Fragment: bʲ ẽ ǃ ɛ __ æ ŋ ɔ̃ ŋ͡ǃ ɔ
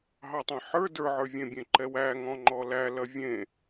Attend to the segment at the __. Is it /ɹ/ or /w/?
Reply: w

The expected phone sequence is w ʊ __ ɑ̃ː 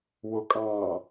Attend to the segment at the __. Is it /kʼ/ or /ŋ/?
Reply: kʼ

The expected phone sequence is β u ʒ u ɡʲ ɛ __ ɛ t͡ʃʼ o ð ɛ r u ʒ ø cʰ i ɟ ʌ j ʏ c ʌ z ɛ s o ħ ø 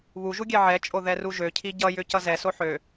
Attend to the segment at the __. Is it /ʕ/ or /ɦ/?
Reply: ʕ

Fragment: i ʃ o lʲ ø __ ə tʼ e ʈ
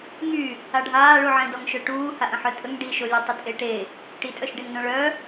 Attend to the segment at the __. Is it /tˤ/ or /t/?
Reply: tˤ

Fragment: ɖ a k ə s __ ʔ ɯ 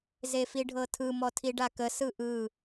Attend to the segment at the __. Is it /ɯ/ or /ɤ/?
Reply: ɯ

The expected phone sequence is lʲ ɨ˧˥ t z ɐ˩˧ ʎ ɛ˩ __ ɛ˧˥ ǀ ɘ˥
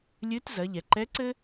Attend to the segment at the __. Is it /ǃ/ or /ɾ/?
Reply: ǃ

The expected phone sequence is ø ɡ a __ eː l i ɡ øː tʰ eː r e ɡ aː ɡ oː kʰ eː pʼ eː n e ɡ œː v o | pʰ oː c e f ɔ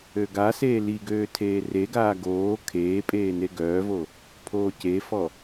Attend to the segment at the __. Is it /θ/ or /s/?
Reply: s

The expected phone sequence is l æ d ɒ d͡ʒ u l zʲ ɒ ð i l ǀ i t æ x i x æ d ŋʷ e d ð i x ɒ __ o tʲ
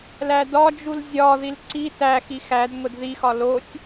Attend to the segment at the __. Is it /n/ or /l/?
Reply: l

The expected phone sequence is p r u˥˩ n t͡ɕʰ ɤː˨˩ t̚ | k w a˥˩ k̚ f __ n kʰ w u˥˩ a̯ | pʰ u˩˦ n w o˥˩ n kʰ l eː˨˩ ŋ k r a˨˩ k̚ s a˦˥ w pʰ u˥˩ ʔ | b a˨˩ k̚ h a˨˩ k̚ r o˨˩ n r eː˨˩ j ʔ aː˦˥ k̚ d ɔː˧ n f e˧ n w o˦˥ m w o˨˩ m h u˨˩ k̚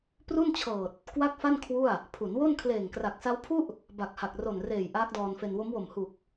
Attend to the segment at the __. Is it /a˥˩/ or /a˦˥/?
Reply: a˥˩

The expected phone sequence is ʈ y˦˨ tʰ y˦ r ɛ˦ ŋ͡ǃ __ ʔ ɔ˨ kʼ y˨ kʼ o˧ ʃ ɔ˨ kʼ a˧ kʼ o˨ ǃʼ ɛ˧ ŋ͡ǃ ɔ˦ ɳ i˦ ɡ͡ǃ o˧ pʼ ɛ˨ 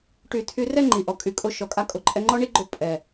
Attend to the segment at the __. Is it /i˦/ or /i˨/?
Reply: i˨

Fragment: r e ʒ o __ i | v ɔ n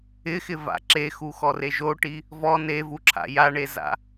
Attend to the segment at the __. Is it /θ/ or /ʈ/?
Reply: ʈ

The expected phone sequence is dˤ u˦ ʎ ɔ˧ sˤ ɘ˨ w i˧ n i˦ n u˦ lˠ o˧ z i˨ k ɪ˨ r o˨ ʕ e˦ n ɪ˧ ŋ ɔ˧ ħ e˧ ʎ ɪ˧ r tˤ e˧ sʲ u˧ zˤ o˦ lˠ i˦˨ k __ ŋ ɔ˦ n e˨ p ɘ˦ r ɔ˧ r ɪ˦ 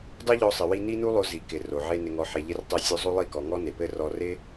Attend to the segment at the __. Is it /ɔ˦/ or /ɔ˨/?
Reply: ɔ˨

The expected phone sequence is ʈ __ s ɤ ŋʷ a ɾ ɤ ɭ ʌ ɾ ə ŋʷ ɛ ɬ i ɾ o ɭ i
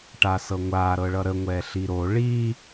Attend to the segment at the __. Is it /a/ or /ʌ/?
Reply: a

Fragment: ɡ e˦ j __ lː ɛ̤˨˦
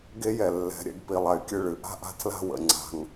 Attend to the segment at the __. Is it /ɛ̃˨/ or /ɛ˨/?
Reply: ɛ˨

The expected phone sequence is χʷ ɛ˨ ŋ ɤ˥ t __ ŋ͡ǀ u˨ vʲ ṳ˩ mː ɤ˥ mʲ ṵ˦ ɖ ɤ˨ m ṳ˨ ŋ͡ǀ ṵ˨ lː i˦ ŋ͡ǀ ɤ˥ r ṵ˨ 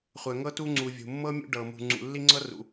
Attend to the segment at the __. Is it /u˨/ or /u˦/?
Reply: u˦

